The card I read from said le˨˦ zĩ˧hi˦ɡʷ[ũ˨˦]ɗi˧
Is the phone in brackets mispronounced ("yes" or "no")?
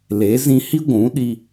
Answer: no